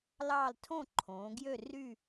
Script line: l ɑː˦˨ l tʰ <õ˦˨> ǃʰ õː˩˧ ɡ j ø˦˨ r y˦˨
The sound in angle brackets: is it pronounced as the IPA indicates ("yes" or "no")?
yes